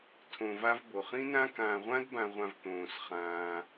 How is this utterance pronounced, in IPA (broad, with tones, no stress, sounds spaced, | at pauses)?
tʰ õ˨ v a˦ v b o˩ χ ĩ˥ n ã˥ k ãː˨ ʁʷ ã˥ d b ã˨ ʁʷ ã˨ v t̪ õː˩ s χ ãː˩